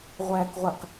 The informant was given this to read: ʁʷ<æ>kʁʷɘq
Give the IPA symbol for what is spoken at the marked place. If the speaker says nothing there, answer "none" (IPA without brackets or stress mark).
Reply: æ